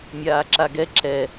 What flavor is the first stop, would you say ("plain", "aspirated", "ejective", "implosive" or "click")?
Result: click